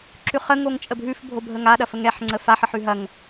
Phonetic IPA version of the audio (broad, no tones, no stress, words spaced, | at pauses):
ǁʉχə ŋoŋt͡ʃʼəbʱʉf bʱobʱəŋa ɗɐfəŋɛħ ŋ͡ǀəfaħ əħʉɦɐŋ